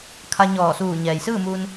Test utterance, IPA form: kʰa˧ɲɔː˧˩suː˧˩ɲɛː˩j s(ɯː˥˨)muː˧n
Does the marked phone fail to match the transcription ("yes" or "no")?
no